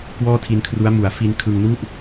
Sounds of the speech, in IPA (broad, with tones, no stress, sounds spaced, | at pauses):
k w ɔː˥˩ tʰ i˧ n kʰ r u˦˥ a̯ m u˩˦ a̯ f i˧ n kʰ ɯ˧ ŋ n u˥˩ ʔ